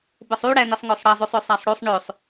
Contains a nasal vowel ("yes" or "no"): no